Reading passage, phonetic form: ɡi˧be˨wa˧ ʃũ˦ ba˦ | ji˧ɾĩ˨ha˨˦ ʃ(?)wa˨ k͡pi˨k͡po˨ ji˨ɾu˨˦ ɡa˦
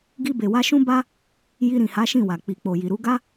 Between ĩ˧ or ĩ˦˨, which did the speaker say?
ĩ˦˨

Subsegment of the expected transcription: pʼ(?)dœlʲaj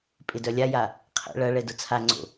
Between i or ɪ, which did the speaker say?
ɪ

